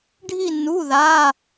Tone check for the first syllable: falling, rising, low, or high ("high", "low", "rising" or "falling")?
falling